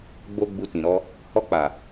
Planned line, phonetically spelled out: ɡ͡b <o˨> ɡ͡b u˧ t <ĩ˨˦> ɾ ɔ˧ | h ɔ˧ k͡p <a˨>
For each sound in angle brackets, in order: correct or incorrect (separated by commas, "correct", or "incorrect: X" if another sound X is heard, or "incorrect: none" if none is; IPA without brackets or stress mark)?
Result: incorrect: o˧, incorrect: ĩ˨, correct